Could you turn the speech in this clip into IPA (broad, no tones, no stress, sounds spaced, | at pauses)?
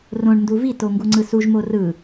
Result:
r õ ɳ n d u v i t o ŋ ɡ u ŋ͡ǀ ɯ s u ʒ m o r ɯ